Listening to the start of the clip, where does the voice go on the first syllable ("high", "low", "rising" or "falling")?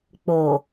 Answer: low